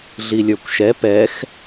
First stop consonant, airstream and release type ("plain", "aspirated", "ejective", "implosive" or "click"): plain